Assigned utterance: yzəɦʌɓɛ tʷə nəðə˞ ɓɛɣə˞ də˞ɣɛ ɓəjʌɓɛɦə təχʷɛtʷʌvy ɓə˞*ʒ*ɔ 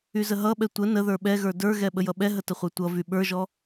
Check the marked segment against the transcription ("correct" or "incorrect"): correct